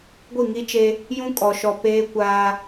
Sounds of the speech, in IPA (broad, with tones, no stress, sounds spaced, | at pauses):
ɡʷ i˦˨ ŋ i˦ t͡ʃ e˦ | j ũ˦ kʼ ɔ˨ ʃ ɔ˨ p eː˦ kʷ aː˦